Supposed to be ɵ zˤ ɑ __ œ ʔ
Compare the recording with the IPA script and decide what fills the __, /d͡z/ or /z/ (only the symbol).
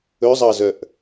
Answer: z